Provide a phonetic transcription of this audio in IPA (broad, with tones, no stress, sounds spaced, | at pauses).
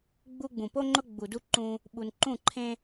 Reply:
ɡ͡b u˦ ɡ͡b ũ˨ p o˦ ŋ͡ǃ ʊ˦ ɡ͡b u˨ d u˦ ǃ ũ˦ | ɓ u˨ n ǃ ũ˦˨ ǃʰ ẽ˦